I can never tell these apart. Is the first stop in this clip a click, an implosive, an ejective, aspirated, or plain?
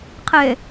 aspirated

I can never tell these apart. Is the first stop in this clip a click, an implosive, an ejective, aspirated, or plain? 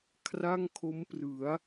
aspirated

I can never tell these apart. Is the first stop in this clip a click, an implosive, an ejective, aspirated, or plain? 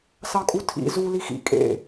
ejective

